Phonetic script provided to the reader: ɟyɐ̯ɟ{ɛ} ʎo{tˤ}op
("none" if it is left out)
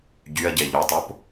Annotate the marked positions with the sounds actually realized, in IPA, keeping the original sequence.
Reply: ɛ, tˤ

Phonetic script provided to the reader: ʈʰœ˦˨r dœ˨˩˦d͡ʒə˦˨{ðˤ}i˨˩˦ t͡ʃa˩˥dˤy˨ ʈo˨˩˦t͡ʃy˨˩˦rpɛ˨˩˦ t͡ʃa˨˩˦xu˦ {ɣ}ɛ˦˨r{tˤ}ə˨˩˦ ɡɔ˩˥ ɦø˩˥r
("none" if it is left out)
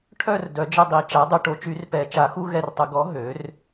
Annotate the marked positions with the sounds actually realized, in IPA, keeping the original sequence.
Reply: dˤ, ɣ, tˤ

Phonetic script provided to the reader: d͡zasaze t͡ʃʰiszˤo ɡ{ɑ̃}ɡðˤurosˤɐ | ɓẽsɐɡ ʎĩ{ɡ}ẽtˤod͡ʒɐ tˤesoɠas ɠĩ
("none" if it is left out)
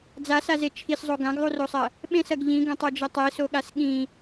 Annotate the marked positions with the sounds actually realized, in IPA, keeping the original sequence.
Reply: ã, ɡ

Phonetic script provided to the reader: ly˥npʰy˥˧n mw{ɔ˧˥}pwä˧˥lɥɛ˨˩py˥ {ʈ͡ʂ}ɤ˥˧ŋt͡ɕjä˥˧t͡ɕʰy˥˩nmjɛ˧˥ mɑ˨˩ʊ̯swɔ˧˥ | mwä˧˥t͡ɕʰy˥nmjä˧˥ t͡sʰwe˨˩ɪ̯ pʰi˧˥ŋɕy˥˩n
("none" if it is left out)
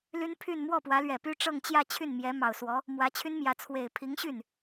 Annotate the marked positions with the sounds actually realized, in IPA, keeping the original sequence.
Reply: ɔ˥˩, ʈ͡ʂ

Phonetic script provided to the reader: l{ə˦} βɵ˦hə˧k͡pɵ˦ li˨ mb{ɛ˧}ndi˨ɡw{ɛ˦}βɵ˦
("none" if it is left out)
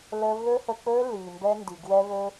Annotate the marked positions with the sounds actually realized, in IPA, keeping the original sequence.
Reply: ə˦, ɛ˦, ɛ˦

